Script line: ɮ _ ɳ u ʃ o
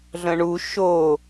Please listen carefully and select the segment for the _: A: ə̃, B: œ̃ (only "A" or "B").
A